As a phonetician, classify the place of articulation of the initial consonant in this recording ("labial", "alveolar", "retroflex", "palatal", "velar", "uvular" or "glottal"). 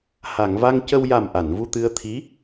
glottal